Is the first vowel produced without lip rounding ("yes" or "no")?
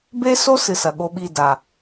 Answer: yes